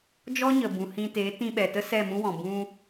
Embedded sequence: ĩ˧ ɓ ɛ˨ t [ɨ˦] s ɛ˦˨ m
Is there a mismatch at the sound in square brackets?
yes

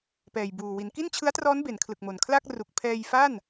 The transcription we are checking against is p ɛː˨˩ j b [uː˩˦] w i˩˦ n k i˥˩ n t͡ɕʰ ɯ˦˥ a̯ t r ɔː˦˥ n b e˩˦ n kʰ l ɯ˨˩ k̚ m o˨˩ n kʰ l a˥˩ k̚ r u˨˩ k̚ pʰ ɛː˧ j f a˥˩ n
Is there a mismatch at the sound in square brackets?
yes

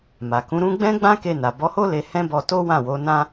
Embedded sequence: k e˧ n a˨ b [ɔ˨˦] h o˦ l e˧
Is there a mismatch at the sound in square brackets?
no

